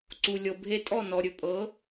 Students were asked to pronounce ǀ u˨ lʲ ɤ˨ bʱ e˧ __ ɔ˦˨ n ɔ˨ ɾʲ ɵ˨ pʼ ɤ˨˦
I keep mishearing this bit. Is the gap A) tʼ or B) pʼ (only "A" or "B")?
A